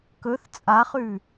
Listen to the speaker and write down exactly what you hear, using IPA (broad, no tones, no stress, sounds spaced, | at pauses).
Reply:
k ɵ θ t͡sʼ a χ ʉ